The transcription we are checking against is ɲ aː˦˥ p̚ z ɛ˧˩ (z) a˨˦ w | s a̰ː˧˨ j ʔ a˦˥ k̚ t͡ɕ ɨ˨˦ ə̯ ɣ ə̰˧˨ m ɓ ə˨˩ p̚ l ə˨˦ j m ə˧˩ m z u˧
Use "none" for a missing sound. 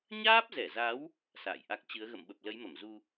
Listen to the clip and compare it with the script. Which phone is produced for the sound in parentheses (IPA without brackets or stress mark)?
z